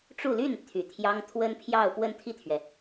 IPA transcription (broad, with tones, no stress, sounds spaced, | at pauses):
ʈ͡ʂ u˥˧ l y˥˩ n t̪ʰ y˨˩ t̪ʰ j ɑ˥ ŋ t̪ʰ w ə˥ n pʰ j ɑ˥˧ ʊ̯ p w ə˥˧ n t̪ʰ i˥˩ t̪ʰ ɥ ɛ˩